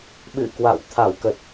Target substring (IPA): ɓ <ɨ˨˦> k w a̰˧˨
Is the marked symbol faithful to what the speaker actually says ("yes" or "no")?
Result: no